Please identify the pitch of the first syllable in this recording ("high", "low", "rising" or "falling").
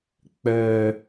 low